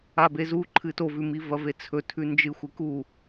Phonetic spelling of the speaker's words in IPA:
a b e z u ǃʰ ɨ t o v ʉ m i v ɐ v e t͡sʰ ɵ tʰ ʉ n d͡ʒ ɨ xʷ ɨ k u

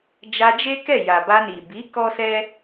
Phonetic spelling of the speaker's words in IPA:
d͡ʒ a˧ d͡ʒ e˦ k ɛ˦˨ j a˨ b a˧ n i˨ b i˨˦ k ɔ˦ s ɛ˦

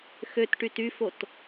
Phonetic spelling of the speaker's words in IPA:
x ø t ʈ y t y f o t

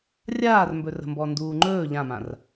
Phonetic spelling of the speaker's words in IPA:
rʲ aː r m b ɵ r ə̤ m b ɔ n d uː ŋ͡ǃ ɵː ʎ ã m ã r

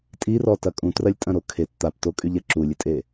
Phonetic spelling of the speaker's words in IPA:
tʼ i r ɔ t ɐ kʼ ũ t r ɐ lʲ tʼ ɐ̃ ɾ o kʰ e t t̪ a p t o kʼ y ʎ ɛ ǁ u lʲ ɪ tʼ e

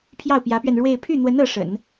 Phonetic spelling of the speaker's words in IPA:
pʰ j ɑ˥˩ ʊ̯ p j ä˧˥ p ɥ ɛ˧ n ɻ w e˥˧ ɪ̯ pʰ y˥˩ n̪ w ə˧˥ n ɤ˧˥ ʂ ə̰˨˩˦ n

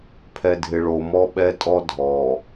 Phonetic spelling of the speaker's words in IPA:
pʰ ɛ˨ dʱ ɪ˨ ɭ o˨ m ɔ˦ ɓ ɛ˦ tʼ ɔ˦ dʱ ɔ˨

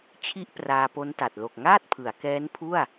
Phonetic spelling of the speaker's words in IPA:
t͡ɕʰ i˥˩ ʔ p r aː˧ p o˦˥ n t a˨˩ t̚ l o˨˩ k̚ ŋ aː˥˩ t̚ pʰ ɯ˩˦ a̯ k ɛː˦˥ n pʰ u˥˩ a̯

